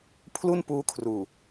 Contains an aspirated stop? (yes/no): yes